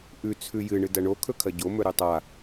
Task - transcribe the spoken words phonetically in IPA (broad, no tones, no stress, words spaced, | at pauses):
ʔʉ t͡sʰʉjɨ ɳɨdɐɳo kʰɵkʰɐɟo mɵɾʉtˤa